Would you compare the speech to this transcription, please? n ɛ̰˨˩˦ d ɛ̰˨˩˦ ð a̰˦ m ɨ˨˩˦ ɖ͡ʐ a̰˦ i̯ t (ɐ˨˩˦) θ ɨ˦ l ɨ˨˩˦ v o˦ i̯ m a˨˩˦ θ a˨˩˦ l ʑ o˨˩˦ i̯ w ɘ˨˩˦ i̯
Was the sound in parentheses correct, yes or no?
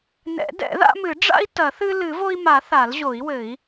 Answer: yes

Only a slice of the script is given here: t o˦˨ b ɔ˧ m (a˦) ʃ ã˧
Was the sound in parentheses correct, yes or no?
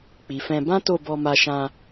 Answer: no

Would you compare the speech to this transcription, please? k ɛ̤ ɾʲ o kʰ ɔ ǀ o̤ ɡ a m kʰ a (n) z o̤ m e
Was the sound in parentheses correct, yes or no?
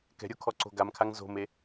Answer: no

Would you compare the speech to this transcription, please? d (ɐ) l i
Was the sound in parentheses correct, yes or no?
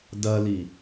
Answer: yes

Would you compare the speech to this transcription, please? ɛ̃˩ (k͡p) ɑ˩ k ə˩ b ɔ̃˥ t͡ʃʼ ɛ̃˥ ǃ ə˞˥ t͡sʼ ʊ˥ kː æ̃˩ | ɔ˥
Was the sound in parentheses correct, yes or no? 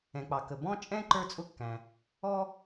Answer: yes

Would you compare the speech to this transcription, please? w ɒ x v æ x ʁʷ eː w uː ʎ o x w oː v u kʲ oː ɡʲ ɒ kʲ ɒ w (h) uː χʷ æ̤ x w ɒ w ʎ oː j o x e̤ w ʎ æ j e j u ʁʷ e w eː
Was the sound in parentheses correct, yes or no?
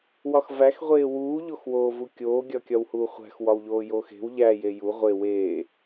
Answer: yes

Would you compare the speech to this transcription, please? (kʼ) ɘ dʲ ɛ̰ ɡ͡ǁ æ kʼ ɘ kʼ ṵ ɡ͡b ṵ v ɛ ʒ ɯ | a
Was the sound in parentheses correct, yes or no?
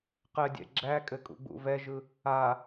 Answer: no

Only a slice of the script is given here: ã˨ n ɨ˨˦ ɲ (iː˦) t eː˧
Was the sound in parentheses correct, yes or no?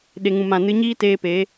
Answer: yes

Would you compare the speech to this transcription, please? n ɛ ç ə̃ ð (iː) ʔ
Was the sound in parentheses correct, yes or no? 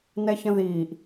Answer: yes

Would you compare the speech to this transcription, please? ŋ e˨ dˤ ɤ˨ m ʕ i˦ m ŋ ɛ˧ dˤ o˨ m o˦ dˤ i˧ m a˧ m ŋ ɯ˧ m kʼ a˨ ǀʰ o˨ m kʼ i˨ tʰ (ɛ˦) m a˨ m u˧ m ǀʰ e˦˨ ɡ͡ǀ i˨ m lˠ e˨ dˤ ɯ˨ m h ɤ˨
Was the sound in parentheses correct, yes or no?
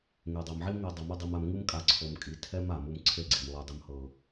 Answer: yes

